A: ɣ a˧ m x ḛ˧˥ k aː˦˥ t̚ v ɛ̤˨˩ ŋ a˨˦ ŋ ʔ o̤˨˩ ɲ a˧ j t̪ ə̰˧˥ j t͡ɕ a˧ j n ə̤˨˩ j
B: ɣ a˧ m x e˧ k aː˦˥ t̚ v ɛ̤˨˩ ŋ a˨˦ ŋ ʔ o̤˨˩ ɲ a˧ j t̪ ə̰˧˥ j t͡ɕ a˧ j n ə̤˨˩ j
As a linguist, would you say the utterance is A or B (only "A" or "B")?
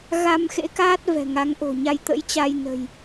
A